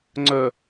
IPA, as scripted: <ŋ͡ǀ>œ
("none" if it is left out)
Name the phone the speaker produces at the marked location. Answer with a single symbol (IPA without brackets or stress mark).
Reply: ŋ͡ǀ